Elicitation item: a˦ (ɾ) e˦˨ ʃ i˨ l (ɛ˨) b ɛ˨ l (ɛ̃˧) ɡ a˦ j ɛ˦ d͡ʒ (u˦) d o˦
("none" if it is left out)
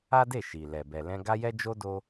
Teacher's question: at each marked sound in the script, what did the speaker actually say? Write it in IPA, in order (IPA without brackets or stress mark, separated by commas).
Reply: d, ɛ˨, ɛ̃˧, o˦